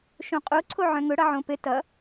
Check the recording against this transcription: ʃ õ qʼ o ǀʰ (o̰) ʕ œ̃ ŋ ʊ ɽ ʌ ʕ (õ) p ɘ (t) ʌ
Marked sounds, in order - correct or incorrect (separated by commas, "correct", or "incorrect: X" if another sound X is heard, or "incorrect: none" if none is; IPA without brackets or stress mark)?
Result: incorrect: o, correct, correct